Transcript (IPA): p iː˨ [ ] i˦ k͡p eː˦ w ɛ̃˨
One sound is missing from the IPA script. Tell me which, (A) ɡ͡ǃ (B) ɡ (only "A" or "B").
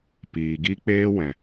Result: B